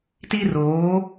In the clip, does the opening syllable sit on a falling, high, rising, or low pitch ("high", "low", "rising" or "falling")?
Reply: high